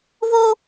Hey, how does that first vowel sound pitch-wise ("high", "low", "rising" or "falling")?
high